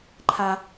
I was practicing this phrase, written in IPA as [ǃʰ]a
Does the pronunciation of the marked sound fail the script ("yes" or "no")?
no